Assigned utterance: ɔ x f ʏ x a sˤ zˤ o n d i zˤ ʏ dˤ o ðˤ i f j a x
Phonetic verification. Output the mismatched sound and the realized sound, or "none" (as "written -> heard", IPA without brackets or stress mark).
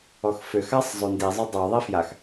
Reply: none